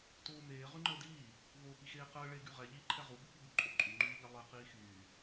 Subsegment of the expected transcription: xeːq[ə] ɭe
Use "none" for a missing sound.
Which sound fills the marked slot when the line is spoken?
əː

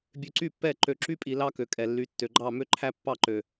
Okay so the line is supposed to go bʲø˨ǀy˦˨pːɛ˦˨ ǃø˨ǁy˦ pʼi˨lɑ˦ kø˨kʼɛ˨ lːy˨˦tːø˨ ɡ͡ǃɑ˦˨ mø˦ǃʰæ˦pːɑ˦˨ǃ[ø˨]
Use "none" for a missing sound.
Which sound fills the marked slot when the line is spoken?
ø˨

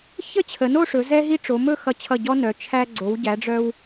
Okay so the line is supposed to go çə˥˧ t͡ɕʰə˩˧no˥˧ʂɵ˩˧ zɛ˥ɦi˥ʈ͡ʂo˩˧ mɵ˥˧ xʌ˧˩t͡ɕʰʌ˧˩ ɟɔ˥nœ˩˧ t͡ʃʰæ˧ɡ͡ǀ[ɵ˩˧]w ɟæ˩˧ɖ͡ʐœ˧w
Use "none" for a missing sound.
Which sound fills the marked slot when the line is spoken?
o˩˧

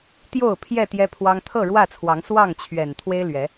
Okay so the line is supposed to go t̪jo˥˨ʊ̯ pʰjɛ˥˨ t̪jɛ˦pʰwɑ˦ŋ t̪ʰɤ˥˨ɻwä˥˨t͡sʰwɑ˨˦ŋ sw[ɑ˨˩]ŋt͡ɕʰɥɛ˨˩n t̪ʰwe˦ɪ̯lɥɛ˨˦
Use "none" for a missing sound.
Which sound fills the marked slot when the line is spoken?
ɑ˥˨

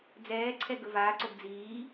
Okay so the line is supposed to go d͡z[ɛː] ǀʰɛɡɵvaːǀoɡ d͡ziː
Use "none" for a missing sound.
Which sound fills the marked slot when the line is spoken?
ɛː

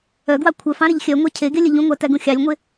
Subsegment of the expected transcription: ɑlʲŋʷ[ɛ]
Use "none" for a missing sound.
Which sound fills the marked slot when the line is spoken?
e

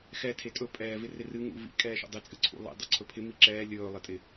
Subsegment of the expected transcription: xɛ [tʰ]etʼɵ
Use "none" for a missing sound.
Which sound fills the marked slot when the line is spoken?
tʰ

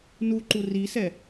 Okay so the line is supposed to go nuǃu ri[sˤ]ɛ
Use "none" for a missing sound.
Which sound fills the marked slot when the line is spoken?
s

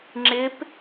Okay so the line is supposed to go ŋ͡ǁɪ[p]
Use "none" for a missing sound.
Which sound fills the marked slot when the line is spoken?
p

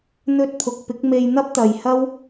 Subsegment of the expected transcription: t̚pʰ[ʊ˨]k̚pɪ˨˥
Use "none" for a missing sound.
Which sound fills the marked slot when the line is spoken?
ʊ˨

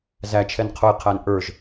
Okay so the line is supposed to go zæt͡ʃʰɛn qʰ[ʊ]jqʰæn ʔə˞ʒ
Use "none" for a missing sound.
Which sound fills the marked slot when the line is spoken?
ʊ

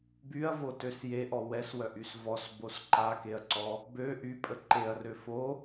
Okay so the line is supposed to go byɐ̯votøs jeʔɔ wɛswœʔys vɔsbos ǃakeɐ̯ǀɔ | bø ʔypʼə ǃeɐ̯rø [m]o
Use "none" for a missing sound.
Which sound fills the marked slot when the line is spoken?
f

